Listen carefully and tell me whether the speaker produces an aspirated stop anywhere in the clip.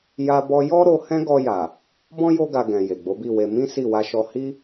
no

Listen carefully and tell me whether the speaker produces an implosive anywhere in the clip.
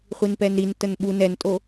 yes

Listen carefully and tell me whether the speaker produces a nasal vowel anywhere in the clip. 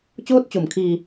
no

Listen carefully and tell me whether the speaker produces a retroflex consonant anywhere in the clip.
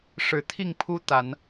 yes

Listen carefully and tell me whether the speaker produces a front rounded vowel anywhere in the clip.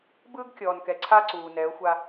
no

